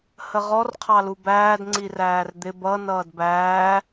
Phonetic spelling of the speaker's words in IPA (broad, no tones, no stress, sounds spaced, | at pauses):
h ə ʁ ɔ r qʰ ɑ l u b æː d ŋ͡ǀ i r æː r d̪ ɪ b ʌ n ʌː d b æː